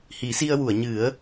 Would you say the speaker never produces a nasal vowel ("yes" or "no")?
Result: yes